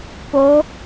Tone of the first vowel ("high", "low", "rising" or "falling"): rising